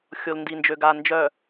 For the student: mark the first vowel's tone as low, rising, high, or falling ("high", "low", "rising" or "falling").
low